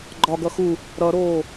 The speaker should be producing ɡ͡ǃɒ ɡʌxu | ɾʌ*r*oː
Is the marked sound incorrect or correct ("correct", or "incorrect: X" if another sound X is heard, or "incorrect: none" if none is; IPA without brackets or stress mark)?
incorrect: ɾ